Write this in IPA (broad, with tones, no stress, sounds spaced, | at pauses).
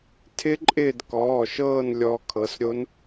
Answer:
tʰ ɪ˦˥ ǃʼ ɪː˦˨ d k ɔː˩˧˩ ʃ ɤː˦˨ n lʲ ɔ˦˥ kʰ ɤ˩˧˩ s ɾʲ o˦˥ n